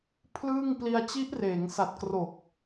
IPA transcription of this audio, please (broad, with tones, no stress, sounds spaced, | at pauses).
pʰ l ɯː˥˩ ŋ p l i˧ a̯ t͡ɕ i˦˥ ʔ r eː˩˦ ŋ s a˨˩ t̚ k r o˨˩ k̚